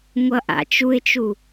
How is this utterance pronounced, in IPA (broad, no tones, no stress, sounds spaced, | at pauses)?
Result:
ŋʷ ʌ ʔ a̰ t͡ʃ u ɪ̯ t͡ʃ u